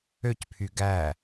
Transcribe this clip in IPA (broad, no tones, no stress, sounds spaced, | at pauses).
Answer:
ø c pʰ y ɡ æ